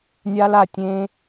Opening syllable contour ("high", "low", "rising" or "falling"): high